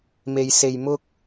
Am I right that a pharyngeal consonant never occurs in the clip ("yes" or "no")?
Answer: yes